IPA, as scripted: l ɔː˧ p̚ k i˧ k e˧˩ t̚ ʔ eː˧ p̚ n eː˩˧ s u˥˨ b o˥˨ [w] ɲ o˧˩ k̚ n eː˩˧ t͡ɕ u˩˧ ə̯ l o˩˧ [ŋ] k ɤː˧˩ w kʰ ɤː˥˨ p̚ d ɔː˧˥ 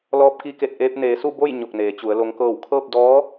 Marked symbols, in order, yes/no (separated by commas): no, yes